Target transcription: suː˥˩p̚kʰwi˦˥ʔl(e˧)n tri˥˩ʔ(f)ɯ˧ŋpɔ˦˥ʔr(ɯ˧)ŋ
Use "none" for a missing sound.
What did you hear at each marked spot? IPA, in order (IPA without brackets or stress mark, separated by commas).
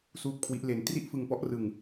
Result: e˧, f, ɯ˧